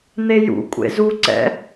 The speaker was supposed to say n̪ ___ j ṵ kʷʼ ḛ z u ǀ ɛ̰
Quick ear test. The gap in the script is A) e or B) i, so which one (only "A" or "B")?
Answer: A